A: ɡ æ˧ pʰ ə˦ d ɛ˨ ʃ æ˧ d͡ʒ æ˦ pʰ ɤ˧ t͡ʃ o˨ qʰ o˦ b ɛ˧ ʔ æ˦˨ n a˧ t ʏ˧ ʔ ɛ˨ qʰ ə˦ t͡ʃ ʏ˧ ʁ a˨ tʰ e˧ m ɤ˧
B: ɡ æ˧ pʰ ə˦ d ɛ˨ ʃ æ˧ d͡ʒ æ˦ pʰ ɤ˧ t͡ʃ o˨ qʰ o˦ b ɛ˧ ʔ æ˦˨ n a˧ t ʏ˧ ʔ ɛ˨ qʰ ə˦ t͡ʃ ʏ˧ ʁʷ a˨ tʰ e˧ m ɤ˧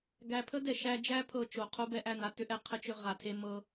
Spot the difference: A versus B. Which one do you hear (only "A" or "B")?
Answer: A